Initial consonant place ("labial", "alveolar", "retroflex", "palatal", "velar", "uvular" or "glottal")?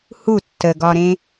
glottal